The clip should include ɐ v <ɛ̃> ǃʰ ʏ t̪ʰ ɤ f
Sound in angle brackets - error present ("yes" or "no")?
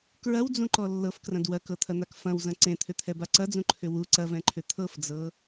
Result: no